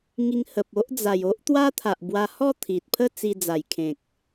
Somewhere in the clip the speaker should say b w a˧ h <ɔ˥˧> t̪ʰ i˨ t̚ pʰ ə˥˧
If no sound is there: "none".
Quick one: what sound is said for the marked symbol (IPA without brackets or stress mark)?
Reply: ɔ˥˧